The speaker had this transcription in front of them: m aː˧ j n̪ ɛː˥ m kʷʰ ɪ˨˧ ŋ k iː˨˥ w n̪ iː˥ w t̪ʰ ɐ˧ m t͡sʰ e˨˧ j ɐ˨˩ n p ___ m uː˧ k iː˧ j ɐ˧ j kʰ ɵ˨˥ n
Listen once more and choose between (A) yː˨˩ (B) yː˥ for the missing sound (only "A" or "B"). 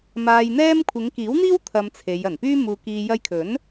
B